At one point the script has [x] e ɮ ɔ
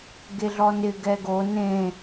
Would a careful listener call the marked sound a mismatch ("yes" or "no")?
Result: yes